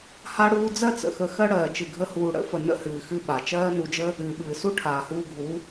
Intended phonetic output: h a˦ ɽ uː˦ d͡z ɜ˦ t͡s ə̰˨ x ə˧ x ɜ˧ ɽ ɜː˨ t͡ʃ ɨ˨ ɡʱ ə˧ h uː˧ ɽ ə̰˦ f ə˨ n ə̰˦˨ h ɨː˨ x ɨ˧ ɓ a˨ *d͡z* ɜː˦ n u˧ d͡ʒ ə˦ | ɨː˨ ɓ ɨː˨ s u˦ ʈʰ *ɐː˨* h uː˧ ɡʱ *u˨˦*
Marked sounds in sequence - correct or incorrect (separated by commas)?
incorrect, incorrect, correct